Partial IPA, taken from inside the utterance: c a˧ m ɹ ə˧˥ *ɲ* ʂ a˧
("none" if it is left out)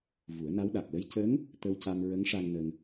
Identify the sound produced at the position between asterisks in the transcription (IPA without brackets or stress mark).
ŋ